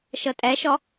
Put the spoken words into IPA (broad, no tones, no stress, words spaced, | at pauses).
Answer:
ʃɤtʼɛʃɔ